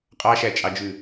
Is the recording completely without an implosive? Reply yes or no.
yes